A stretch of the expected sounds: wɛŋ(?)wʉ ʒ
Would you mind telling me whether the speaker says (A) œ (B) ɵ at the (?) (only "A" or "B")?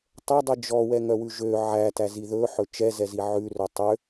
A